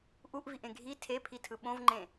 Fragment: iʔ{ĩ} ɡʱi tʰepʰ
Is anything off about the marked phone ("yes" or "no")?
yes